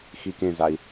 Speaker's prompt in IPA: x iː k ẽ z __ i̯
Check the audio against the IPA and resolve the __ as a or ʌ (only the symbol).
a